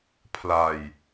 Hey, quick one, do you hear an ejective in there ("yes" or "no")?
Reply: no